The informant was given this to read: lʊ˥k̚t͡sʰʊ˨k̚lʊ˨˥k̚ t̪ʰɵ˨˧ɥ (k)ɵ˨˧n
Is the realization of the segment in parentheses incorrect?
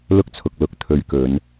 no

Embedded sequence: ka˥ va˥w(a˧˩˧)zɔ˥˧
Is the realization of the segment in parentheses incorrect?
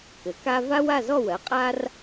yes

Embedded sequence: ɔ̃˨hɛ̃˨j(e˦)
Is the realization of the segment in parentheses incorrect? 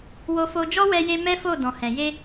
yes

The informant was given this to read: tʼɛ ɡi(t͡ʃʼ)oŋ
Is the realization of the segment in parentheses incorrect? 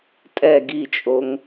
no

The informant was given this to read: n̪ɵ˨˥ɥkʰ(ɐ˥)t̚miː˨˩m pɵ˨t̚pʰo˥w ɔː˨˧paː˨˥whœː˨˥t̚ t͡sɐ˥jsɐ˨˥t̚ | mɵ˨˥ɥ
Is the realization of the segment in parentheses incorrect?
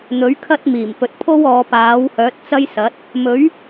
no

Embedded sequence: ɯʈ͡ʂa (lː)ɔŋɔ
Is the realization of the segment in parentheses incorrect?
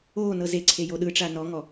yes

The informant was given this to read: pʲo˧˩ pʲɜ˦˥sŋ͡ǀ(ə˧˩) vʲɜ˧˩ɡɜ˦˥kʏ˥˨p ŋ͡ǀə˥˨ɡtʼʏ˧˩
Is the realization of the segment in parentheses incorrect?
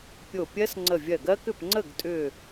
no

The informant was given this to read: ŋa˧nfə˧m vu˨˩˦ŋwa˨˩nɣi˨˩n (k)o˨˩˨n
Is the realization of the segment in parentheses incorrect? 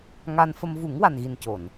yes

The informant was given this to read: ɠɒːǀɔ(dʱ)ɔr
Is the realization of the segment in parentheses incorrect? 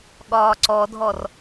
no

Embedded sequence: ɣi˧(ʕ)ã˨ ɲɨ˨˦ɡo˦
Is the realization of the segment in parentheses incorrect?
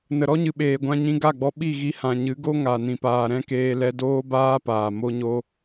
yes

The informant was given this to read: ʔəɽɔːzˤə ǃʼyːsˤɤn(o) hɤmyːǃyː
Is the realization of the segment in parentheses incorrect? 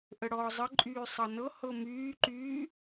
yes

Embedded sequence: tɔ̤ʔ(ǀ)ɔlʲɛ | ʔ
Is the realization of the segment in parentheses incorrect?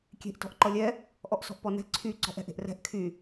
yes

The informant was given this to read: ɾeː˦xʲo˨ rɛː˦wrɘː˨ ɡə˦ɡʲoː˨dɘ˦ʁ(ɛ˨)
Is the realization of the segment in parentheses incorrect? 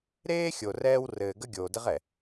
no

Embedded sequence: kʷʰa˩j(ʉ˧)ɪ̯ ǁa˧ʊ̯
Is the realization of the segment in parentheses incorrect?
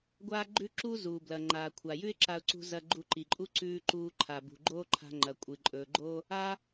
yes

